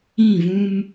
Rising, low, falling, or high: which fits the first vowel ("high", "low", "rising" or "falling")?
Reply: falling